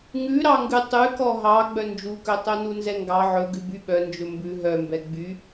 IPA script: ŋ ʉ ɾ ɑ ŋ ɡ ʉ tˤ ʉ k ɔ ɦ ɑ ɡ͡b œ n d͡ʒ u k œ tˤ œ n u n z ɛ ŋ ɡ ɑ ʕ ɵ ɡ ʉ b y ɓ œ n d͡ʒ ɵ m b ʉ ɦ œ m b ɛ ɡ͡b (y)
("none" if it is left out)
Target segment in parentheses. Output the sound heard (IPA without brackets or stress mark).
y